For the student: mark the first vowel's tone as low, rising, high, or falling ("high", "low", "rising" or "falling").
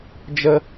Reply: high